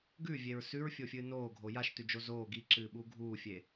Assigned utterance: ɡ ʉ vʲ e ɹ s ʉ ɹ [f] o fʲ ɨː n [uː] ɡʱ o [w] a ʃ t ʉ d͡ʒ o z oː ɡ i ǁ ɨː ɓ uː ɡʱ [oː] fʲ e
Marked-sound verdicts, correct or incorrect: incorrect: fʲ, incorrect: oː, incorrect: j, incorrect: uː

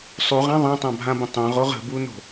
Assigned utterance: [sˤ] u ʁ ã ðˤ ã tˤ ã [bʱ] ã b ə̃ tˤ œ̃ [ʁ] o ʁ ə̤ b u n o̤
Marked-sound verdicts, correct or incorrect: correct, correct, correct

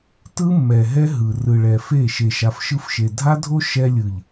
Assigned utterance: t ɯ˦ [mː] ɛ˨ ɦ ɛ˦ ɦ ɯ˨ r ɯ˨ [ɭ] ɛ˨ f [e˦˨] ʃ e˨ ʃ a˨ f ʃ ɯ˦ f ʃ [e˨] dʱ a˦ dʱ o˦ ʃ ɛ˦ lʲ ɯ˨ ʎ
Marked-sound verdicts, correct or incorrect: correct, correct, correct, correct

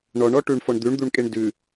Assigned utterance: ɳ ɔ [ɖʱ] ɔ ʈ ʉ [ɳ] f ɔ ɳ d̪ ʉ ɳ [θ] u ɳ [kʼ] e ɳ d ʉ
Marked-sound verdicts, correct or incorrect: incorrect: ɳ, correct, incorrect: d̪, correct

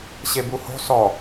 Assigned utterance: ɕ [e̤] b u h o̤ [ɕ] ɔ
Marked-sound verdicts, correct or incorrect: incorrect: e, incorrect: s

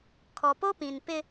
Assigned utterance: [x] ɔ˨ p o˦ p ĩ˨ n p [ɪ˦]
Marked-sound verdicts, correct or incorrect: incorrect: kʰ, correct

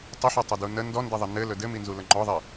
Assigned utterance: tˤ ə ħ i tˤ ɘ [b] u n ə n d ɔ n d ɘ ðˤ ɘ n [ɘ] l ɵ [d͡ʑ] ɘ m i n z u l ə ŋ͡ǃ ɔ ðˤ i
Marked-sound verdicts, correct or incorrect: incorrect: d, correct, incorrect: d

